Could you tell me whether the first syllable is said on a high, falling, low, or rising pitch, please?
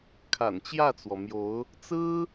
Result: low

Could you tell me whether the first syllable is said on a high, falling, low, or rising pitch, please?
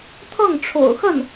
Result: falling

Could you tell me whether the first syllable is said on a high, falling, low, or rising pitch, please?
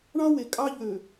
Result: high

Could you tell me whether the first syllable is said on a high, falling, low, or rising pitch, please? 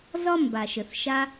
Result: high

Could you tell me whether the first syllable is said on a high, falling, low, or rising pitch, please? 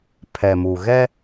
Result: low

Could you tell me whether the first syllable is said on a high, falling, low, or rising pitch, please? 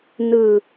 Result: falling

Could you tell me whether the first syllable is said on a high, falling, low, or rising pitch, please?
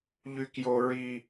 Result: high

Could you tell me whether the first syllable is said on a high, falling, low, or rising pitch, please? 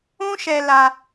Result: high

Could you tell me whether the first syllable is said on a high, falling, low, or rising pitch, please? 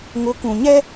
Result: rising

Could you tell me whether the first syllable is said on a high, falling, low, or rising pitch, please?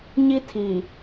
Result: high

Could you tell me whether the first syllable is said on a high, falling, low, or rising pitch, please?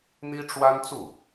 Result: high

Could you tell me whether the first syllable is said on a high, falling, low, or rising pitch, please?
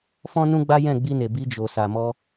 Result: high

